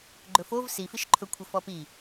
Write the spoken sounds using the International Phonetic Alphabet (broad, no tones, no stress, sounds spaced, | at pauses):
ɡ͡ǃ ɵ f o v s i f i ʃ ǃʰ ɵ kʷʰ ə f ɔ p i